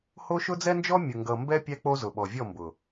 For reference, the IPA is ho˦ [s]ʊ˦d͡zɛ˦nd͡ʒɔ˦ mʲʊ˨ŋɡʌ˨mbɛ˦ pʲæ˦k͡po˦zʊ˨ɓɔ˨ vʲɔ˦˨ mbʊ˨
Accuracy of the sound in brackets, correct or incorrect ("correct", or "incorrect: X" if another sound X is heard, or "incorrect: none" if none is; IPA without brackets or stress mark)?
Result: incorrect: ʃ